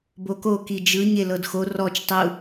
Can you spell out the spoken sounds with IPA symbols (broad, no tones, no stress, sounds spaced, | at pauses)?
b o k o k i d͡ʒ ɯ ɲ e l ɤ d x o r ɔ t͡ʃ tˤ u